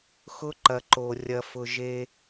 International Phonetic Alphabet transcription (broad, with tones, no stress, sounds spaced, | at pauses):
x ʊ˦ ǃ ɐ˨ ǃ o˨ rʲ ɐ˨ f ʊ˨ ʒ e˦